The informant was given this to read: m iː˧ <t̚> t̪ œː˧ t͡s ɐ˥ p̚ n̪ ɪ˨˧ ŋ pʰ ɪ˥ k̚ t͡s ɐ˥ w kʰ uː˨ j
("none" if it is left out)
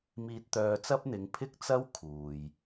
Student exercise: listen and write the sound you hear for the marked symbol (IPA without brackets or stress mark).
t̚